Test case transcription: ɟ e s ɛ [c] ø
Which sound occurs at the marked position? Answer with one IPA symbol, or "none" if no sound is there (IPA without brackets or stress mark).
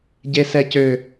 c